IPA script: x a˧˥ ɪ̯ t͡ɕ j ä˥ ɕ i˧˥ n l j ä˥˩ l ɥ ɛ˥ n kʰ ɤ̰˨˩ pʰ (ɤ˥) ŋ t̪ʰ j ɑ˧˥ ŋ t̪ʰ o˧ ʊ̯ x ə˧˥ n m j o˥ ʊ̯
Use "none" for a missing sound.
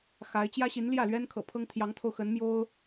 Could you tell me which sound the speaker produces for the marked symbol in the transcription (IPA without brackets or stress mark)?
ɤ˥